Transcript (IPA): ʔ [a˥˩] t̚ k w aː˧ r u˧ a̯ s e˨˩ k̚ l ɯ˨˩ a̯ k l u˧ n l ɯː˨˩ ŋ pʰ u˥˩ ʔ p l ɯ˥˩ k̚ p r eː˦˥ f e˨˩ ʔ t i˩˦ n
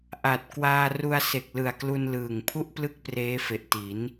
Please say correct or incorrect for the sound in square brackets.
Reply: incorrect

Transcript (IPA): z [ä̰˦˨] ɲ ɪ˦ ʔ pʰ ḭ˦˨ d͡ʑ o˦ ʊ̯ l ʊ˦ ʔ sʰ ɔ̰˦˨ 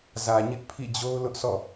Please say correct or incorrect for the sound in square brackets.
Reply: incorrect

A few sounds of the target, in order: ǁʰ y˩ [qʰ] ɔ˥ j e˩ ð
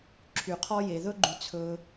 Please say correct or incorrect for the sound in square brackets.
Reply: correct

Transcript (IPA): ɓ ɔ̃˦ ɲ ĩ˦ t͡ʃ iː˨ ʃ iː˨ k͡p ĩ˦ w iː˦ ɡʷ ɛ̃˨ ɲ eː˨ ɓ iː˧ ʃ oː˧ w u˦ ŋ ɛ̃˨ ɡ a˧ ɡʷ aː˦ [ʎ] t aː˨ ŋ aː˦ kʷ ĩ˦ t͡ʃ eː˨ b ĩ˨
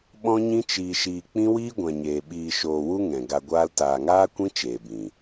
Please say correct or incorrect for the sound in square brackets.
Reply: incorrect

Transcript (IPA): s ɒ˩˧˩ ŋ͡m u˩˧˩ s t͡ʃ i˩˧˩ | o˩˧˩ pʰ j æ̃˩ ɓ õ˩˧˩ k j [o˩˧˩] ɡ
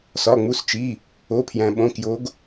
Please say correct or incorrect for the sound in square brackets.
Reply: incorrect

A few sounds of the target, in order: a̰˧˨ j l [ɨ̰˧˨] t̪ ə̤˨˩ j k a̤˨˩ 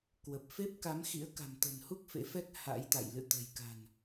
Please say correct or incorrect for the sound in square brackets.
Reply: correct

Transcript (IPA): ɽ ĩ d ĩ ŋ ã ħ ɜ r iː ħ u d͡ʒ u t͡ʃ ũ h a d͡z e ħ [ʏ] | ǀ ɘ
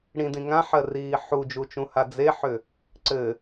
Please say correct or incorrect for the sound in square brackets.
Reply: correct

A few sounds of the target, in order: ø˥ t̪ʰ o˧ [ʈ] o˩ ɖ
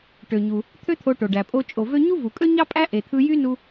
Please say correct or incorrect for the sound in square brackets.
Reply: correct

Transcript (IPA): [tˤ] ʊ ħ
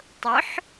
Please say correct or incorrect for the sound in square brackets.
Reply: correct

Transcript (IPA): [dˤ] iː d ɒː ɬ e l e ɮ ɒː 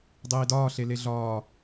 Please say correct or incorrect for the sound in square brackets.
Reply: correct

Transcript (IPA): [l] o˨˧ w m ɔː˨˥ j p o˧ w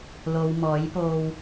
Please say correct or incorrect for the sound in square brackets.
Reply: correct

